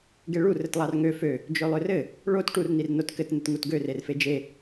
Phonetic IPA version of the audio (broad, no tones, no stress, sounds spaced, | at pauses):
ɡ e ɭ u r ɘ t lˠ ɑ r ŋ ø f ø | d͡ʒ ø lˠ ø r ɘ | ɭ o t ʈ u r n i r n o t k ɘ t n ɘ t ŋ u t ɡ ø r e r f e d͡ʒ e